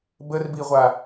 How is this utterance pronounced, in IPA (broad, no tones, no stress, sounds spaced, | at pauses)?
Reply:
b ə r b i ʁʷ a